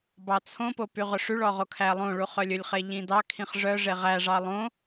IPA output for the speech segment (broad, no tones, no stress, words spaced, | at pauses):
bɑt͡sʰõpo pyʁɵʂyɭɔ ʁokʰælˠõɭu χœlʲɵlʲχe ʎĩdɑkʰĩχ ʐœʐe ʁæʐɑ lˠõ